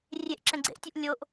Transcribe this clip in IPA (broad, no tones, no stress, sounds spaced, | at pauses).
rʲ e ʔ ǁ ɛ̃ ɡ͡ǀ ḛ ʔ tʲ u ʔ lʲ o ʔ